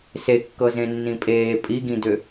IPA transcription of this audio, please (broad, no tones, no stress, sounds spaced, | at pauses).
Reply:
s e kː ɤ z ẽ nː ĩ pʼ eː pʼ i ɡ ĩ d ʏ